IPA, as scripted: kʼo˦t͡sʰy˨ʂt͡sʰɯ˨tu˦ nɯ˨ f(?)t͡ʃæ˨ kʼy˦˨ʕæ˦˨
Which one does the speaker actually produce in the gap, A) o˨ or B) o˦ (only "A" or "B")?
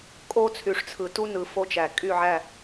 B